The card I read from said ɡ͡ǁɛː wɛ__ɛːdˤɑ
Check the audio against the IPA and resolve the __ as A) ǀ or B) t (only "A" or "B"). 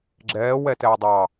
B